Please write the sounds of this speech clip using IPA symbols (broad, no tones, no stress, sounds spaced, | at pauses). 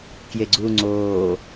k j e ɡ͡ǀ uː ŋ͡ǀ oː